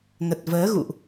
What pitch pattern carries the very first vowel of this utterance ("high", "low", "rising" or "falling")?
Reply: low